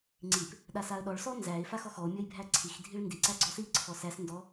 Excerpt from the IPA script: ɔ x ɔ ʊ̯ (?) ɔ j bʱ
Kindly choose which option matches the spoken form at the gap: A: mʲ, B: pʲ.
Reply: A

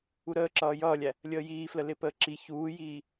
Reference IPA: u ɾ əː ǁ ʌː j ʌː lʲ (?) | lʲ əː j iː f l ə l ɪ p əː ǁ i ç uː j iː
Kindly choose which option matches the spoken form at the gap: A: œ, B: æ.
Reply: B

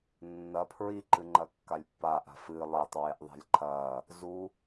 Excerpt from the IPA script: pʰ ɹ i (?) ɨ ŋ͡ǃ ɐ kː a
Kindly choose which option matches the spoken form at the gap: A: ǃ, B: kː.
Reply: A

